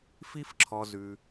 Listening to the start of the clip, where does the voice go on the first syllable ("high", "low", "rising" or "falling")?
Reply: high